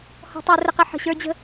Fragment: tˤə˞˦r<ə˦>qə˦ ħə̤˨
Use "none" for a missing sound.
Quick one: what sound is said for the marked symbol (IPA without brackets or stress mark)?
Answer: ə˦